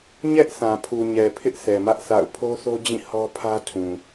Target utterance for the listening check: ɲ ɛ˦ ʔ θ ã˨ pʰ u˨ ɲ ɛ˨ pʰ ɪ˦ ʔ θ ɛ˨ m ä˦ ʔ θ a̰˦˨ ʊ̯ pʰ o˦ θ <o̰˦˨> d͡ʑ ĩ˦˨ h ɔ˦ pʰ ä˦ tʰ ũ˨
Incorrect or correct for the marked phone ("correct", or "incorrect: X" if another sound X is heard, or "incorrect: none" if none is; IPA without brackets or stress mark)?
incorrect: o˦